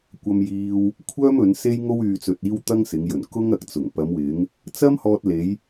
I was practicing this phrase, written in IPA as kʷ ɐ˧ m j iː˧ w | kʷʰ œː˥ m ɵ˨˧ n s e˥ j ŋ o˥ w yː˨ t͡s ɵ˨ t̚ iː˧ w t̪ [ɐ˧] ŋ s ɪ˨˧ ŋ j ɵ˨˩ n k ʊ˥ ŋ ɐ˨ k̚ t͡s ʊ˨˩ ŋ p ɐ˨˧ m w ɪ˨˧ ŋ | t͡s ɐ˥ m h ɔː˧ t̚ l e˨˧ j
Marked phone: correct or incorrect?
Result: incorrect: ɐ˥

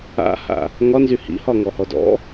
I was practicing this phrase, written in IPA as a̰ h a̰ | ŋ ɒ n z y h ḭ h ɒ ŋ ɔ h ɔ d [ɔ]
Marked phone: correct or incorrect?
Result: incorrect: ɔ̰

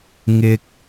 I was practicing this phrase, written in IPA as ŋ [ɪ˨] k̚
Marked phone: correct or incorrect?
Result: correct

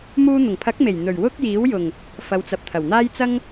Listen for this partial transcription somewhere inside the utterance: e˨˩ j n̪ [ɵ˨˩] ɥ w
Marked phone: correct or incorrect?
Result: correct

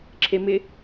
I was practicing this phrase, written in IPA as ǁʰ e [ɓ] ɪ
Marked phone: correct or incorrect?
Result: incorrect: m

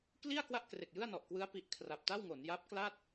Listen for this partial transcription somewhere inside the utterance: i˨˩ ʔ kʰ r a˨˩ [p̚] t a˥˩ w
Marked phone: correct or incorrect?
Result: correct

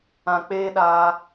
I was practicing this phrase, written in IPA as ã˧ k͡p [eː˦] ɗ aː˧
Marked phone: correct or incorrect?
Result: correct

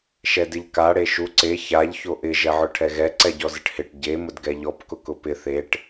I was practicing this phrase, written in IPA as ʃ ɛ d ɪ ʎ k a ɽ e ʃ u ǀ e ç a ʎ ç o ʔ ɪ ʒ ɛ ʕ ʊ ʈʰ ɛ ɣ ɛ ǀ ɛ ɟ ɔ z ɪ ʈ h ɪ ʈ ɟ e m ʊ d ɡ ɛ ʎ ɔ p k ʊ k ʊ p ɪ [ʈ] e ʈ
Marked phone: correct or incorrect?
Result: incorrect: θ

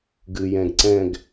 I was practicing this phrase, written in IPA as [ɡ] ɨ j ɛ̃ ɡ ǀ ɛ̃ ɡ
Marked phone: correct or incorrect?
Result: correct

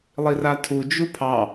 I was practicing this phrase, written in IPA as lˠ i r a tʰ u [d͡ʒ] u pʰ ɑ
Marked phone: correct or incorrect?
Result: correct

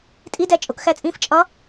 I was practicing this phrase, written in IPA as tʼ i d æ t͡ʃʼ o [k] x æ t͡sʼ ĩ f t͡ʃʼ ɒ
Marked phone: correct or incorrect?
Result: correct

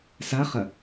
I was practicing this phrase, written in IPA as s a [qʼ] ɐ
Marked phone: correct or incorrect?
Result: incorrect: χ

